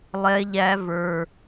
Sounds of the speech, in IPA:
lˠ ɛ˦ ʎ æ˦ v ə˞˦

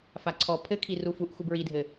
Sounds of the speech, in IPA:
f a ǀʰ ɔ pʰ ɘ kʰ i r u f u ʔ x u b ɹ i dʱ ɘ

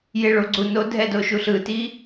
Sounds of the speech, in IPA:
j e ɭ o ɡ͡ǀ u n o dʱ ɛ d o ʃ u ɬ ɯ t i

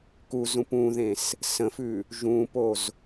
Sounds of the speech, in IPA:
k u z ũ p ũ ð ẽ s | s ə̃ f ʉ | ʒ ũ p o z

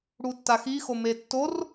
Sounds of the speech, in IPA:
ɽ u tː a x i x o m e tː o r

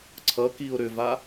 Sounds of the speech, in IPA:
ǀʰ ʌ k i ʊ̯ ɾ ʏ v a

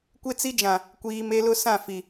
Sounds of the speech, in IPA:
kʷ e˦ t͡s i˦ d͡ʒ ã˨ | kʷ iː˨ m e˦ l ʊ˦ s ã˦˨ f i˨

